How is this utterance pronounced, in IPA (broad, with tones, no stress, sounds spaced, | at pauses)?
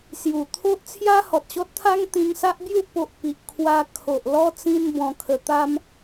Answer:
s j u˨˩ t̪ʰ o˦ ʔ t͡sʰ j a˦ h ɔ˨ t̚ ɕ ɔ˦ t̚ t̪ʰ a˦ ŋ t̪ ĩ˧ ŋ s a˦ ʔ b j u˥˧ p o˦ ʔ p i˨ ʔ kʰ w a˧ kʰ o˨ ʔ l ɔ˦ t͡s ĩ˦ n b ɔ̃˧ kʰ ə˧ t̪ a˦ m